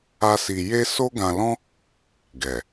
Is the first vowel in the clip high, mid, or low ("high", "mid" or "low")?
low